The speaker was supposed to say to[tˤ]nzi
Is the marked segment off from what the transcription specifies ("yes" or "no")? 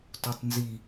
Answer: no